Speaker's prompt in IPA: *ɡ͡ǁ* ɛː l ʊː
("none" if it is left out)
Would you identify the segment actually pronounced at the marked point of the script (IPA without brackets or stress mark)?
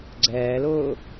ɡ͡ǀ